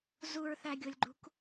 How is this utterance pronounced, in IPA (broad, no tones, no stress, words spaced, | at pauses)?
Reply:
zuɹθæɡʲʊlʲɡ͡ǃṳk